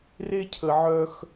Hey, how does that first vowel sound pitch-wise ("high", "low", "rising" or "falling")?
high